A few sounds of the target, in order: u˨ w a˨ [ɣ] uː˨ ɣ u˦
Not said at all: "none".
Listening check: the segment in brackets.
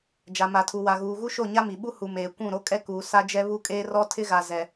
ɣ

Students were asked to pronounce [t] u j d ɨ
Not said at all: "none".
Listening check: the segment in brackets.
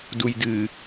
d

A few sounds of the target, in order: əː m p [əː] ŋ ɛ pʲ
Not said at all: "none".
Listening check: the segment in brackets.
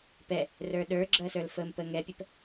əː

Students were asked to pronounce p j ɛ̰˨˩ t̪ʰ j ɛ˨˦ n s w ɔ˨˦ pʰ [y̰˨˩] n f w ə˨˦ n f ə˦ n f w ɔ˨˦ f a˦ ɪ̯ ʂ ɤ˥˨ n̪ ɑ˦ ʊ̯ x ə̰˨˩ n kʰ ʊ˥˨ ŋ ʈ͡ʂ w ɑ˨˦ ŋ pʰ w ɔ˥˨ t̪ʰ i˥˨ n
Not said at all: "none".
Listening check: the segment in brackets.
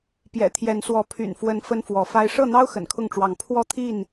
y̰˨˩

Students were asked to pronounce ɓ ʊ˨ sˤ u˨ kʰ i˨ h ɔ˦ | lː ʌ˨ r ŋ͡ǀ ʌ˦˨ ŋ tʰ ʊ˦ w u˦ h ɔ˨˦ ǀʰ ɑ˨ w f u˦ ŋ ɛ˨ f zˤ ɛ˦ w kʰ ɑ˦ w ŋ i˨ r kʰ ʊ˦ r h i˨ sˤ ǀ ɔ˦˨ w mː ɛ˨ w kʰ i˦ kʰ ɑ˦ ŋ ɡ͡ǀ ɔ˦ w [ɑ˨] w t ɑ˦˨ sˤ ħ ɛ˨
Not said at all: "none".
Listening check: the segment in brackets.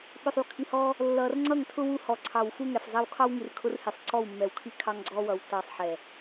ʌ˨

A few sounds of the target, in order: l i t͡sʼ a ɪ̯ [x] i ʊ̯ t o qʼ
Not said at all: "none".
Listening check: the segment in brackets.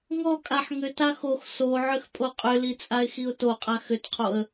x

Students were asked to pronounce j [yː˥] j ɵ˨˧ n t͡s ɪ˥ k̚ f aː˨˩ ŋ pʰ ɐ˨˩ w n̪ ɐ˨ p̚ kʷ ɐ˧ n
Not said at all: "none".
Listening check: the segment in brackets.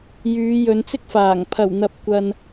yː˨˧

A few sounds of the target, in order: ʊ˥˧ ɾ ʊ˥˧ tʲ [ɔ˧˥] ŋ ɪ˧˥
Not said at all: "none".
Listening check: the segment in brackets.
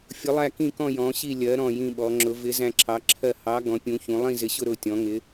ɔ̃˧˥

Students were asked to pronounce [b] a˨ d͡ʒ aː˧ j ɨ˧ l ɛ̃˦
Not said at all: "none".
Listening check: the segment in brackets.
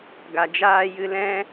ɡ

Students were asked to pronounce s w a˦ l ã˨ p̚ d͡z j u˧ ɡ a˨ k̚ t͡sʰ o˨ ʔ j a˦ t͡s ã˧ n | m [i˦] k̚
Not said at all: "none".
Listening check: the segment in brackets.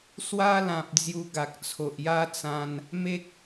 e˦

